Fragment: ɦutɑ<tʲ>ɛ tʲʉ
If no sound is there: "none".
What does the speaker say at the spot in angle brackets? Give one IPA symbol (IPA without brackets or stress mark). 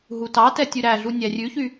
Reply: t